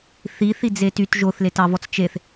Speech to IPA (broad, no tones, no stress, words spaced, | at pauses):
θiθid͡ze tyt ʒoθletɑvɔt͡s t͡ʃeθ